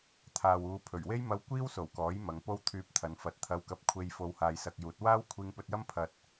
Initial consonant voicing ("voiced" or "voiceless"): voiceless